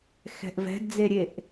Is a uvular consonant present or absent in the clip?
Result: absent